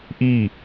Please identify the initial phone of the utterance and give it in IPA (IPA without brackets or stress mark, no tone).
ʔ